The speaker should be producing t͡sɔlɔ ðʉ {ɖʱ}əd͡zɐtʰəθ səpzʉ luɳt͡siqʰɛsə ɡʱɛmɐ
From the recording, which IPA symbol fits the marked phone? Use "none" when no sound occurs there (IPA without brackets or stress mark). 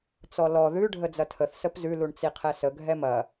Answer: ɖʱ